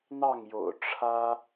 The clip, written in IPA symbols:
n̪ ɑ˥˨ ŋ j o̰˨˩ ʊ̯ ʈ͡ʂʰ ä˦

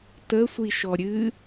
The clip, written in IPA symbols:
t ə sʷ i ʃ ɔ ɾʲ ɨ

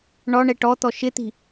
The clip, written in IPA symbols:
ɳ ɔ ɳ ɛ ʈ ɔ t̪ ɔ ʃ ɪ t̪ i̤

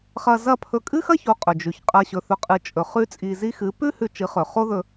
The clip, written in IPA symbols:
χ ɐ˧ z ɐ˥˩ pʰ ɵ˧ kʼ ɨ˥ x ɐ˥ ç o˩˥ qʼ ɵ˩ d͡ʒ ʉ˩ ç qʼ ɐ˧ ɕ ɵ˩˥ θ ɵ˩˥ qʼ ɨ˩˥ t͡ʃʼ ɵ˩ χ ʉ˧ t͡sʼ i˧ z i˥ x ɨ˩˥ p ʉ˥ h ʉ˧ t͡ʃ ɨ˩˥ χ ɵ˩ χ o˥ ð ɵ˧

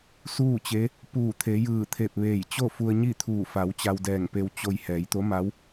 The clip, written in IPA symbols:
s uː˥˨ t͡ɕ e˧˥ | p uː˧˩ t̪ʰ e˩˧ j ɯː˧˩ t̪ʰ e˧˩ p̚ ʋ eː˧˩ j t͡ɕ o˥˨ f u˧ ə̯ ɲ i˥˨ t̪ʰ uː˧˩ f a˩˧ w t͡ɕ a˧ w d ɛː˧˩ ŋ p e˧ w t͡ɕ o˧ j h ɛː˩˧ j t̪ o˧˥ m a˧˥ w

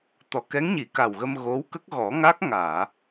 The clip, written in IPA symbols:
t̪ ɔ˨˩˨ k ɛ˧˥ ŋ ɲ i˨˩˨ k a˨˩ w ɣ ə˧ m ɣ o˧˥ w k ə˦˥ k̚ ɣ ɔ˨˩˦ ŋ a˦˥ k̚ ŋ aː˨˩˨

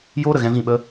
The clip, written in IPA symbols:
j oː˦ ɾ ə˨ ɣ ɛ̃˧ v ĩ˦˨ ɓ ə˦

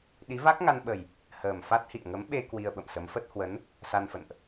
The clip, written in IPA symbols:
ɗ i˨˦ v a˦˥ k̚ ŋ a˧ n ɓ ə˨˩ j | h əː˨˩ m f a˦˥ t̚ h ḭ˧˨ ə̯ ŋ ə˨˦ m ɓ e˧ k w i˧ ə̯ ɓ ə̰˧˨ m s ə˨˦ m f ə˦˥ t̚ h w ə˨˦ n | s a˧ n f ə̰˧˨ n ʔ

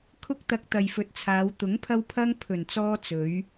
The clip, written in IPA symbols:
kʰ ʊ˥ k̚ t̪ ɐ˧ k̚ t̪ ɐ˨ j f ɵ˨˥ t̚ t͡sʰ aː˨˧ w t̪ ʊ˨˥ ŋ pʰ ɐ˧ w pʰ ɐ˧ ŋ pʰ ɵ˨˩ n t͡s ɔː˧ t͡s ɵ˨˧ ɥ

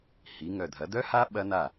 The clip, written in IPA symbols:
h i˩˧ ŋ œ˨˩ dʱ ɐ˩˧ d œ˦˥ h a˦˥ ɓ ɐ˦˥ n a˥˩

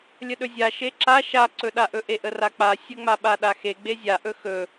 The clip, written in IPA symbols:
lʲ ə ɗ ɵ zʲ a ʃ e ǁ a ʃ a ǀ ɵ ɗ a ʔ ɵ ʔ e ʔ ə r a k͡p a sʲ ə ŋ͡m a ɓ a ɗ a x e ɡ͡b e zʲ a ʔ ɵ x ɵ

